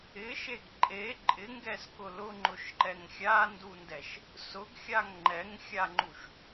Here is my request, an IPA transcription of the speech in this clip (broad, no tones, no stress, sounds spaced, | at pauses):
ɪ ʃ e ɡ ǃʼ e ǃʼ ɪ ŋ ɡ ɛ s k ʊ l ʊ ŋ͡ǃ ʊ ʃ ǃ ɛ ŋ xʲ a n d u n d ɛ ʃ | s ʊ ɡ xʲ a ŋ ŋ͡ǃ ɛ ŋ xʲ a ŋ͡ǃ u ʃ